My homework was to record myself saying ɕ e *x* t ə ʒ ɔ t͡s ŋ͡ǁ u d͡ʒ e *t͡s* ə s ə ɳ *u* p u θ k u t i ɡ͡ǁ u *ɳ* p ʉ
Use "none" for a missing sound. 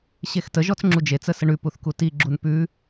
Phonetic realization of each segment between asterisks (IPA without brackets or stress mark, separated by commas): x, t͡s, ʉ, n